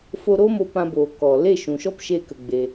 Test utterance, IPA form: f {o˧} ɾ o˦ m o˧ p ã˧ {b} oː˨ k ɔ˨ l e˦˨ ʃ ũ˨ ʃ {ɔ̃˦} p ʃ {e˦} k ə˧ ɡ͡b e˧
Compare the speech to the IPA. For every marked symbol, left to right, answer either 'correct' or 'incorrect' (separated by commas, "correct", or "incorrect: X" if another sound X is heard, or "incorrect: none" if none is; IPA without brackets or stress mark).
correct, correct, incorrect: ɔ˦, correct